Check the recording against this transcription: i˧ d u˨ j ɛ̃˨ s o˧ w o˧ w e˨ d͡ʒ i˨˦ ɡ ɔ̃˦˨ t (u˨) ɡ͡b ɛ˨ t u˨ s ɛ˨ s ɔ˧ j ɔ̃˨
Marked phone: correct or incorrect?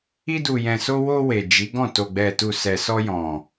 incorrect